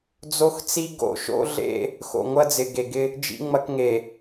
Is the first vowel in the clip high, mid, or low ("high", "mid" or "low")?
mid